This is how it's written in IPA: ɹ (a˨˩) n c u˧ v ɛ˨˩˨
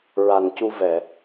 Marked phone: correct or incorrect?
correct